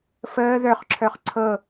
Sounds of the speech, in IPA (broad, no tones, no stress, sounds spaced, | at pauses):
f əː ð œ χ ǁʰ œ χ ǀʰ ɤ